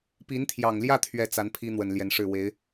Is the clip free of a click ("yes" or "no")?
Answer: yes